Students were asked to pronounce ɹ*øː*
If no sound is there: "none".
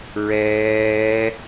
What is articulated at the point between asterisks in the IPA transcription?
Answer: ɛː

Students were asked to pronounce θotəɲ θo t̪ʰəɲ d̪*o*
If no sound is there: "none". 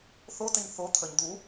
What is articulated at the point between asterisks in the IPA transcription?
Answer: u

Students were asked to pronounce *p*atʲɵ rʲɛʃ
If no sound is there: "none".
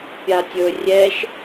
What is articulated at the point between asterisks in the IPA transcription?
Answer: pʲ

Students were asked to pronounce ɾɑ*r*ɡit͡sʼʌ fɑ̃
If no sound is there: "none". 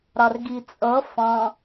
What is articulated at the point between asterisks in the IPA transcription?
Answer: r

